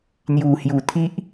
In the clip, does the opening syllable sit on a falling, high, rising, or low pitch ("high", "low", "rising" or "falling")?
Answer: low